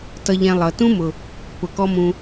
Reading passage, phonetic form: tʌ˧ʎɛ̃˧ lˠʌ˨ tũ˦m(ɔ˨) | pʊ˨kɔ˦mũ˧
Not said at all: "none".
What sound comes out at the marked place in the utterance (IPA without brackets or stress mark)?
ʊ˨